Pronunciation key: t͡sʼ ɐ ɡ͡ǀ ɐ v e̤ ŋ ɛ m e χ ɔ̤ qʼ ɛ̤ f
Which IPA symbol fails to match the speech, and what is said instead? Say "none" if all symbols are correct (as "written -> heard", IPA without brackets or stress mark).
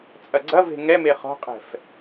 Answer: none